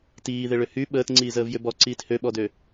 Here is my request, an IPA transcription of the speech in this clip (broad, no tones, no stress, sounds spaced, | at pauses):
t iː ð ɪ ɭ ʏ h y ɓ əː t ŋ͡ǀ iː z əː v j ʏ b ɔ ǀ iː t h ø ɓ ɔ d ø